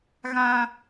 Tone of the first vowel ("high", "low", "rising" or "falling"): high